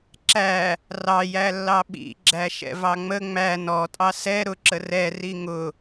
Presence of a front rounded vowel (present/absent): absent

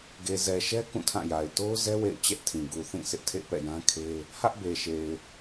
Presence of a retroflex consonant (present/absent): absent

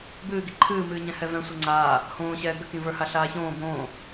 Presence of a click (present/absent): present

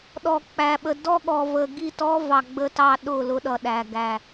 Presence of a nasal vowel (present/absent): absent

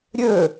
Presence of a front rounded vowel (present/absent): present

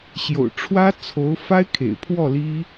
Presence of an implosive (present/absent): absent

